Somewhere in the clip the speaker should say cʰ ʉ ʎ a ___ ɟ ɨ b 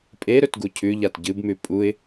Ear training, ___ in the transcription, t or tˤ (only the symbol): t